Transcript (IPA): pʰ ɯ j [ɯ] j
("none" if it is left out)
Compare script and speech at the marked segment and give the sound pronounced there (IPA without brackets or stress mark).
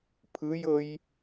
ɤ